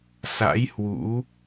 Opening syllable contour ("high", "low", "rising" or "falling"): rising